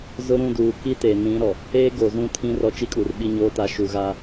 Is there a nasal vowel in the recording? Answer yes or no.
yes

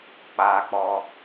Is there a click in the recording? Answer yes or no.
no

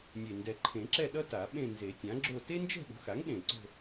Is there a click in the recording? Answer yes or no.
yes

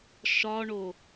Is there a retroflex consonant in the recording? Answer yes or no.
yes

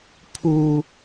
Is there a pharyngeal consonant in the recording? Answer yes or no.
no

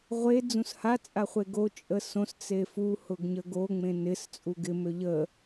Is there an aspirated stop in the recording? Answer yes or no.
no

